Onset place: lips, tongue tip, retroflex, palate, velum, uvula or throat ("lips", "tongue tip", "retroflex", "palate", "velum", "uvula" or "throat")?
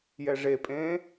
palate